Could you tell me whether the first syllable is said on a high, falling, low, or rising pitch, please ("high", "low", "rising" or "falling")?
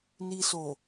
low